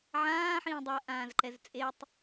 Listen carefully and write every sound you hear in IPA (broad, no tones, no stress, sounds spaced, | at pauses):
ʕ ãː ħ ĩː dˤ o ɐ̯ ʔ ãː z ǃ ɛ z t͡sʼ e tˤ